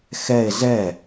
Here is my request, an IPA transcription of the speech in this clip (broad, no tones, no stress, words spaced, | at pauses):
xɛe̯ zɛ